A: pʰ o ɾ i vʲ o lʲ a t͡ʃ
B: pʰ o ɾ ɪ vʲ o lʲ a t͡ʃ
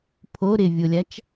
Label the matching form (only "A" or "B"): B